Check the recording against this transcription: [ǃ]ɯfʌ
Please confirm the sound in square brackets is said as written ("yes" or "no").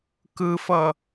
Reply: no